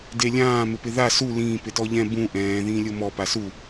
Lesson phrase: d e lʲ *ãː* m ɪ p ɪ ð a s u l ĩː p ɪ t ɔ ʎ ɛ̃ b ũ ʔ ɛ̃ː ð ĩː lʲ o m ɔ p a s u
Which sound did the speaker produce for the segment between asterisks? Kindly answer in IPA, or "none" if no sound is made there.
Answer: ãː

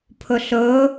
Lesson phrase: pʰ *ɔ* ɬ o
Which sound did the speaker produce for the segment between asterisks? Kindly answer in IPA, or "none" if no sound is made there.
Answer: o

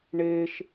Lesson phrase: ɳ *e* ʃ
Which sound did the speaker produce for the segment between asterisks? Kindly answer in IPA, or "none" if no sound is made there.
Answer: e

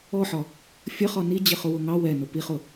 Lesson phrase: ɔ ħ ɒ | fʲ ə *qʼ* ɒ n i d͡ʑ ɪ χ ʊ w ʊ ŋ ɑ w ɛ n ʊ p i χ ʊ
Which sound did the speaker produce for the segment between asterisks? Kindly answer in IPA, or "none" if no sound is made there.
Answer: χ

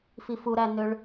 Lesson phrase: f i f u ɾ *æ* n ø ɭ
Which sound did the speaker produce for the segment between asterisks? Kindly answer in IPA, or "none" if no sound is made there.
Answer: æ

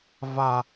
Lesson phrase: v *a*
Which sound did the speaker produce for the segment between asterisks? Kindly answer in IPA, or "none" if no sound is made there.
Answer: a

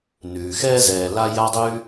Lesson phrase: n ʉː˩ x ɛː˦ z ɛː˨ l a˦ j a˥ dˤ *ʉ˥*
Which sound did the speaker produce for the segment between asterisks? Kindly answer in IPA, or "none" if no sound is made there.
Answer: ʉ˥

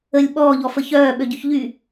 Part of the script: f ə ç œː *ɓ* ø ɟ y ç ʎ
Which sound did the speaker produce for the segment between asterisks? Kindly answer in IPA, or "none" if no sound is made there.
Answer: ɓ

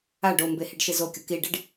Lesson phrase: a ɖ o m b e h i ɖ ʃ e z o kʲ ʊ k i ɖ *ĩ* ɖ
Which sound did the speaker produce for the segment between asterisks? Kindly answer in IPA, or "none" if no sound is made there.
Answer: i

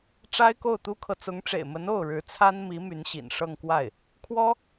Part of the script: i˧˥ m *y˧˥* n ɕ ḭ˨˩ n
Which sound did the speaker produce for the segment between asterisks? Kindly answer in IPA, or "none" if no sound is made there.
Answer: y˧˥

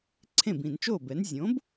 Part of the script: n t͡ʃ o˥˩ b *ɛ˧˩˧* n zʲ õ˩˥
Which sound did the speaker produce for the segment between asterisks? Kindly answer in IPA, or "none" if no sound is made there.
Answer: ɛ˩˥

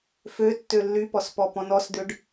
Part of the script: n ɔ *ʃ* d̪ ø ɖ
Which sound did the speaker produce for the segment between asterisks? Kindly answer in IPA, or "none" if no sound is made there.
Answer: s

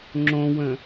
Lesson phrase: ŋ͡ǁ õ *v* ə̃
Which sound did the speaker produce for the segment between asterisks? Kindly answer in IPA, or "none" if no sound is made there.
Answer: w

